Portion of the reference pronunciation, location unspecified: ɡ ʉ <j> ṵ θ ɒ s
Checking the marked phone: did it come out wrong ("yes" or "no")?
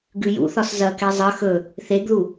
no